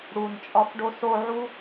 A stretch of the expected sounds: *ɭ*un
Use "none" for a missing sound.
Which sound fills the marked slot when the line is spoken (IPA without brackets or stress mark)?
ɽ